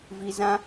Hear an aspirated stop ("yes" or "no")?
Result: no